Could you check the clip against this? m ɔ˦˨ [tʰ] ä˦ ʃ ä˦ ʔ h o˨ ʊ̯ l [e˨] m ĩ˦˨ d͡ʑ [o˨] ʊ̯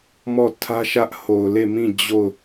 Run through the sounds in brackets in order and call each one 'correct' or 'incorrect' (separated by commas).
correct, incorrect, incorrect